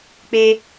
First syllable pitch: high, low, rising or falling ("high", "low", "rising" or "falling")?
high